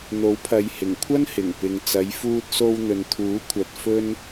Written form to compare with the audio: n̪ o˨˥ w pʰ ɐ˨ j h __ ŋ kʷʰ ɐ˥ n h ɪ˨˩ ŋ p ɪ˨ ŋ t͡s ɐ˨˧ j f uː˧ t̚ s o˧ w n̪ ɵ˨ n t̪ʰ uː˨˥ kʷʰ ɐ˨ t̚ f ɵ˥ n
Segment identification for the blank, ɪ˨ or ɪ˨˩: ɪ˨˩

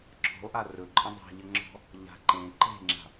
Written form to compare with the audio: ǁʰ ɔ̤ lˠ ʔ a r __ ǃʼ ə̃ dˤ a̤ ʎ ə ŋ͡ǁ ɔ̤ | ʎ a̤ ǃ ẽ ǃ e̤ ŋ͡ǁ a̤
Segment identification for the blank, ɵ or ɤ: ɵ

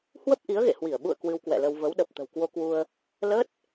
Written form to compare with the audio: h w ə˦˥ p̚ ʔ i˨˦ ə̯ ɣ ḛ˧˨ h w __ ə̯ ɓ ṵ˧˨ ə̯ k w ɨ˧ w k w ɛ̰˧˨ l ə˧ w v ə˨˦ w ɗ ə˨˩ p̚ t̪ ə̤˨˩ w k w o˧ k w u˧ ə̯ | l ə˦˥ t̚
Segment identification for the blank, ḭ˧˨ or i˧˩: i˧˩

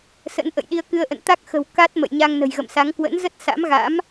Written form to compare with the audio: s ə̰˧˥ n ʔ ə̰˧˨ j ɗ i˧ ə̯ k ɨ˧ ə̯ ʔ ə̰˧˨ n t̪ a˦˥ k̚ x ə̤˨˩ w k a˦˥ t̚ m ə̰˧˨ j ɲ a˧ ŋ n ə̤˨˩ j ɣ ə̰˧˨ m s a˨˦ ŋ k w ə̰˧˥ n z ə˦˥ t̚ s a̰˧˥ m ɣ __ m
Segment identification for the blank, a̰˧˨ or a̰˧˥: a̰˧˥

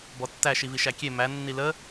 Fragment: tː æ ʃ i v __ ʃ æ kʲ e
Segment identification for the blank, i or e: i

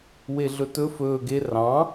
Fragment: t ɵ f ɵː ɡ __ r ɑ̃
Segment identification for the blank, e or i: e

